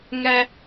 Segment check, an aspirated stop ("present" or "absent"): absent